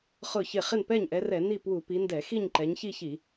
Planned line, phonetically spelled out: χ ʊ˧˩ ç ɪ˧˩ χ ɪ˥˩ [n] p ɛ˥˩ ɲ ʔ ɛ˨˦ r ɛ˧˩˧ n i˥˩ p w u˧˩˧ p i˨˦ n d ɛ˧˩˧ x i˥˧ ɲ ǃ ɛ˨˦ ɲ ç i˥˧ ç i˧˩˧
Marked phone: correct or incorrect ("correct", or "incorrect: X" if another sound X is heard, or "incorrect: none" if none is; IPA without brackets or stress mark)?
correct